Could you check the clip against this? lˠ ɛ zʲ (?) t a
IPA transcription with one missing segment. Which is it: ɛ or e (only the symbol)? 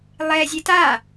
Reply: e